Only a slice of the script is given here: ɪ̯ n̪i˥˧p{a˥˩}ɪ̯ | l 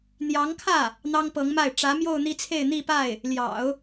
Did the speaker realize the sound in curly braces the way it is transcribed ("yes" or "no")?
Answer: yes